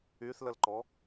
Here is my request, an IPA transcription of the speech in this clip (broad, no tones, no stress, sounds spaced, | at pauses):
y θ l ə l ǃ ɔ